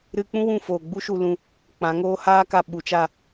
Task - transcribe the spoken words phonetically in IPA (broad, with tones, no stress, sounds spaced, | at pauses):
ɾ ɨ˧ k͡p ũ˦ w ũ˦˨ f oː˨ ɡ͡b u˦ ʃ u˧ l ũ˧ | k͡p ã˨˦ ŋ oː˦ h aː˦ k a˧ ɓ u˨˦ t͡ʃ a˦˨